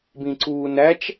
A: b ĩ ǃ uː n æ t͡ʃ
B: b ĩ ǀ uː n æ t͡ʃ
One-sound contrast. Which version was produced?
B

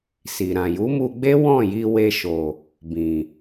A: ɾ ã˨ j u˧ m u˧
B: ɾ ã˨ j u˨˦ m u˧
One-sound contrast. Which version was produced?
B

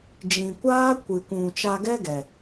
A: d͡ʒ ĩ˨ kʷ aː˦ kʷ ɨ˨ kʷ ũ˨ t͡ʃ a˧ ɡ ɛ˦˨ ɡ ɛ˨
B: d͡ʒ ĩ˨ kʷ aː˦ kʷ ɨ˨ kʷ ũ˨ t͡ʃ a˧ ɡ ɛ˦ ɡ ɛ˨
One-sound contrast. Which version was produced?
B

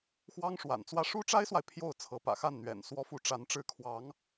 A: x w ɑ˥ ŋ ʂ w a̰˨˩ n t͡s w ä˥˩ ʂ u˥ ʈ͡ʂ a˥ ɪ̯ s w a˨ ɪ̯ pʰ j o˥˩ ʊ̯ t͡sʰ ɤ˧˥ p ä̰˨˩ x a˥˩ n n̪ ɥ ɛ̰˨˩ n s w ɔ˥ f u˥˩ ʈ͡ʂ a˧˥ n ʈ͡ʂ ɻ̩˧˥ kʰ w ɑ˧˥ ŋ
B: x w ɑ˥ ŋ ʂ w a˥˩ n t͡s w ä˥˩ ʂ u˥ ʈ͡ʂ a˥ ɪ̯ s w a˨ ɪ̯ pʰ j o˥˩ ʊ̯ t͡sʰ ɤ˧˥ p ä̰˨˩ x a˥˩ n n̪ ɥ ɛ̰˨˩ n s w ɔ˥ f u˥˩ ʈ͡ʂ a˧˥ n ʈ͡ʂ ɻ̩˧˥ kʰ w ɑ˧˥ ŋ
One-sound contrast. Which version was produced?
A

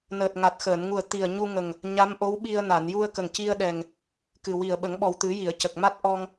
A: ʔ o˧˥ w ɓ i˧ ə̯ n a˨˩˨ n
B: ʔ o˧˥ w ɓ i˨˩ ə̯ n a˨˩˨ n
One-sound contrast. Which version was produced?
A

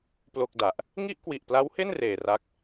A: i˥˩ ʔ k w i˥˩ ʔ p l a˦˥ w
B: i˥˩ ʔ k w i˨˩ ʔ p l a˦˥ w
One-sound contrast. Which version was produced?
B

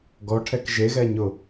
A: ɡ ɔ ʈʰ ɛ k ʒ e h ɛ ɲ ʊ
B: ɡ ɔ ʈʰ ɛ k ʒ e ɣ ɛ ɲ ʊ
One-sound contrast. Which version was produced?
B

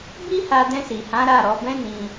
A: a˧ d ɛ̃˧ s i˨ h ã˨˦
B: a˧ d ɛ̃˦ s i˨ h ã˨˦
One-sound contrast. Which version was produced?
A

